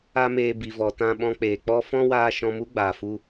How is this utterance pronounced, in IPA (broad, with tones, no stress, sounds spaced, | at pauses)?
a˦ m eː˧ b i˨ v ɔ˨ t ã˧ ɓ ɔ̃˧ k͡p eː˨ k͡p ɔ˦ f ɔ̃˦ w aː˧ ʃ ɔ̃˧ m u˦ ɡ͡b aː˨ f u˦